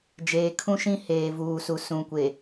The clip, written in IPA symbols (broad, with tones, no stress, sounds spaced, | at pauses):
d͡ʒ eː˨ kʰ ũ˦ ʃ ĩ˦ h eː˨ v uː˨ s u˨ s ũ˨ kʷ e˨